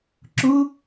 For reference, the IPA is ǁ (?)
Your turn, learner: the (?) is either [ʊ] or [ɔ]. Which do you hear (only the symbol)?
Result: ʊ